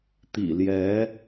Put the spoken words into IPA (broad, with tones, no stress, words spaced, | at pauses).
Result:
t̪ḭ˨˩ljɛ˧˥